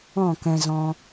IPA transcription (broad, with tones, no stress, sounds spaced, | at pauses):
ɔ̃˦˨ k ɛ̃˧ z ɔ̃˧